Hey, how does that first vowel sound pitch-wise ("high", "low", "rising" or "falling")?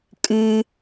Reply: high